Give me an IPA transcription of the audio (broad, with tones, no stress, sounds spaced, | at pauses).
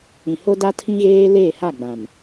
ĩ˨ h o˦ d a˦ tʰ ĩ˦ ɣ eː˦ l eː˦˨ h a˦˨ ɡ͡b ã˨ m